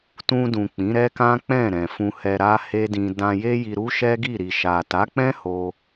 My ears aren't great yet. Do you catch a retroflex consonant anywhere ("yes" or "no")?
no